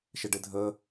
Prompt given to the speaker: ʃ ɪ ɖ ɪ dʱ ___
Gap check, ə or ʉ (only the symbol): ə